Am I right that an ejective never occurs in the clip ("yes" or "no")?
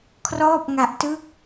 yes